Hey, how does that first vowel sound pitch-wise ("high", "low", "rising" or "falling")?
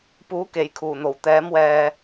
rising